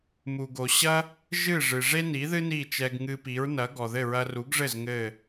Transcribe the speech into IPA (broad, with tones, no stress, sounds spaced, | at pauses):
m u˩ ɡ o˩ ɕ ɐ˥ | ʒ ɨ˥˩ ʐ ɨ˩ ʐ e˥ n i˩˥ ð ɨ˥ n i˥˩ t͡ʃ ɛ˧ ɡ ŋ ɨ˧ p i˩˥ ɹ n ɐ˩˥ ɡ ɔ˩ ð ɘ˥˩ ɹ ɐ˧ r u˩˥ ɡ ʐ ɘ˥˩ z ŋ ɘ˥˩